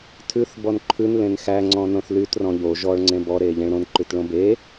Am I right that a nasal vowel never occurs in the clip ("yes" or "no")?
no